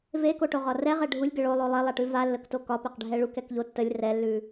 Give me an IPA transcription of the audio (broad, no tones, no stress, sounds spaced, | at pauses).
v e k o ʈ o ʁ ɒ r ɛ ʁ ɛ ɖʱ u lʲ ɡ ə ɭ o lˠ o lˠ e lˠ a ʈ ʉ v a lː ə k t o k ɒ p e q ɖʱ ɛ ɭ u k ɛ k ʎ o tː ə lʲ r ɛ lː ʉ